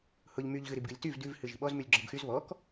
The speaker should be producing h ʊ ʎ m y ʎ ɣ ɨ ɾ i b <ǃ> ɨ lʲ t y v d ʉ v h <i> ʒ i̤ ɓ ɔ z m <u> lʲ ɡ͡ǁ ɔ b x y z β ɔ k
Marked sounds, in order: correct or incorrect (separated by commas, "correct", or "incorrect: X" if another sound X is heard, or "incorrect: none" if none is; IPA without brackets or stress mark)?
incorrect: ɡ, incorrect: ɨ, incorrect: ʉ